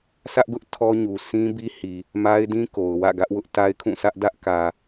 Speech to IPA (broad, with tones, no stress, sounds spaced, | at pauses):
s ä˦ ʔ ɡ ʊ˦ ʔ tʰ ɔ˦ ɲ u˨ sʰ ĩ˦ b i˦ h i˨ | m a˦ ɪ̯ d ĩ˦ k o˨ ʊ̯ w ä̰˦˨ ɡ ä˦ ʔ w ʊ˦ ʔ t a˦ ɪ̯ kʰ ũ˦˨ sʰ ä˦ ʔ d ä˦ ʔ k ä˨